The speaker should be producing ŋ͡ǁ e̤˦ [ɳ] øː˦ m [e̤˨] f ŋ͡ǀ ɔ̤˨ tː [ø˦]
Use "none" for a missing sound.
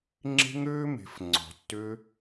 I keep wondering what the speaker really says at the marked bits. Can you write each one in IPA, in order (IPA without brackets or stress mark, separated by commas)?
ŋ, e̤˨, ø˦